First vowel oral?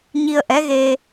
yes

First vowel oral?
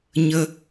yes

